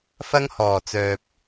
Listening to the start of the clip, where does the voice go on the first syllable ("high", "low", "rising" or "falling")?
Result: high